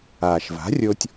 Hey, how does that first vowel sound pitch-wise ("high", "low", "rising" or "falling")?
low